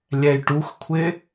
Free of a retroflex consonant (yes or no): no